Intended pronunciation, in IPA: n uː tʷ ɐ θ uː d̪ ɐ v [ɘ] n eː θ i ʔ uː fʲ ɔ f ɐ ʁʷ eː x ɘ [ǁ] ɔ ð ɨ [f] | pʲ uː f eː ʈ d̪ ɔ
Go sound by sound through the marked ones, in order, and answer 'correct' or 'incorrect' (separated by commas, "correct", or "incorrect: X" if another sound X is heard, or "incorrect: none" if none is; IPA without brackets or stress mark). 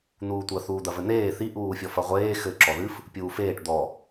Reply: correct, correct, correct